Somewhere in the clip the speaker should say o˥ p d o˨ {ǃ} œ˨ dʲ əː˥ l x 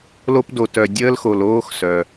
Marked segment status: incorrect: t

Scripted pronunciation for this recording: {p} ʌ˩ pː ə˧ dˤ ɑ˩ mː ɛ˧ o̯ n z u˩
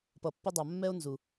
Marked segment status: correct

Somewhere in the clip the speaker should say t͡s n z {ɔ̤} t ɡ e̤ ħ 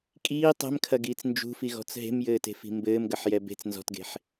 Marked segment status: correct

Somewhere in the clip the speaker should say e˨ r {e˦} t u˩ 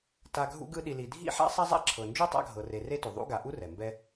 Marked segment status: correct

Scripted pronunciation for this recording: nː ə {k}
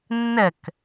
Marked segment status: correct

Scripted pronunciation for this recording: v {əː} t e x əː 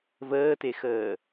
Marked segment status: correct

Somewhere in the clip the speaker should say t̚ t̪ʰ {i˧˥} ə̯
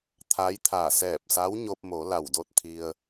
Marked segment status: incorrect: i˧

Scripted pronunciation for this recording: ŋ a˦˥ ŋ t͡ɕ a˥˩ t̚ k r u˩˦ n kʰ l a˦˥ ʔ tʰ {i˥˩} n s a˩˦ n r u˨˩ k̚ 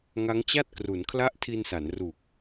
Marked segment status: incorrect: i˧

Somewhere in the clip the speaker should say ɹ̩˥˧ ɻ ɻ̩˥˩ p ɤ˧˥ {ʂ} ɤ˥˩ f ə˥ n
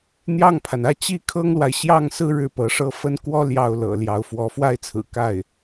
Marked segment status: correct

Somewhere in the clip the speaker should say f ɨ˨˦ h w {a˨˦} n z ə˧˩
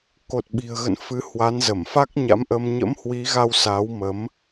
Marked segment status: correct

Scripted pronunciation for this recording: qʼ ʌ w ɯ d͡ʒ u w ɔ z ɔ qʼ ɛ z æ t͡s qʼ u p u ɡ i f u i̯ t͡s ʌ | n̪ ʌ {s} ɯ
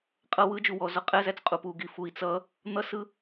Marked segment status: correct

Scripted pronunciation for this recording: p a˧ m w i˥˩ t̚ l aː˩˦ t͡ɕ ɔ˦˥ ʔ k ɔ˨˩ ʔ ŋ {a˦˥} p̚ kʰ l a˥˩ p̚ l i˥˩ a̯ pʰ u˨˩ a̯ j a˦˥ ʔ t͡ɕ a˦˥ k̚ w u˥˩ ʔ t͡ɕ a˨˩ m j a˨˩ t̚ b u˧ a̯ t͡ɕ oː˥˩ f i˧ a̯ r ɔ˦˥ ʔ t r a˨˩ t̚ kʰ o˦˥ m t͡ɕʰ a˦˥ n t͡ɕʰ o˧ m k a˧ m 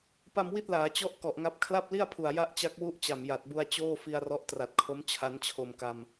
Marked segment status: correct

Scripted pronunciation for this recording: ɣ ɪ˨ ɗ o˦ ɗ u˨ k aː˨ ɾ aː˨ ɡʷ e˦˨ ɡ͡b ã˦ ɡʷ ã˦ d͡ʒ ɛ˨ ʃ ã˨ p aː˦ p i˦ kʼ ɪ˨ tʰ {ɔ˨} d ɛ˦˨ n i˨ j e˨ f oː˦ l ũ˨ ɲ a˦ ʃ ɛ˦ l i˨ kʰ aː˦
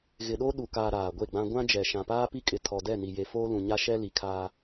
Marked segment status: correct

